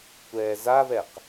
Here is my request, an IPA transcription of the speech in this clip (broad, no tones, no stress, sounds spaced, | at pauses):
kʷ ɛː z a v ɛ q